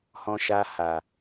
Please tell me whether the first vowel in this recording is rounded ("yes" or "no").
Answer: yes